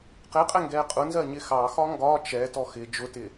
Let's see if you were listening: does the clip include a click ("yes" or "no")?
no